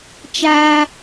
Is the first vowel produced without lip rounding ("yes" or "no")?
yes